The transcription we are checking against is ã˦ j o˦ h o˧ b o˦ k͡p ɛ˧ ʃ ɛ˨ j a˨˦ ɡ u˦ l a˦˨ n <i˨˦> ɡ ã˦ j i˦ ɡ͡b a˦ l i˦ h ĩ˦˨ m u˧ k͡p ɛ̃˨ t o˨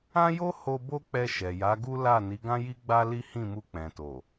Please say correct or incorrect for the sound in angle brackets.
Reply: correct